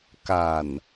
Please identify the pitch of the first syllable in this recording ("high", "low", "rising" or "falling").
low